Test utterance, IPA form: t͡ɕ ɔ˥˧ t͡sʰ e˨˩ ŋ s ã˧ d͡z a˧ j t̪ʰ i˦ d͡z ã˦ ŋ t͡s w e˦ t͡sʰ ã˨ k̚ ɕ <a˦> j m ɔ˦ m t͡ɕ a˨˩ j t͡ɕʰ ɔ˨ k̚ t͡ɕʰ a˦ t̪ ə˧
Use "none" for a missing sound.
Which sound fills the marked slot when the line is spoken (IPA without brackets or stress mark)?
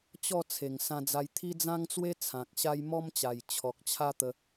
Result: a˦